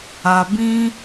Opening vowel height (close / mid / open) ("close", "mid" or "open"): open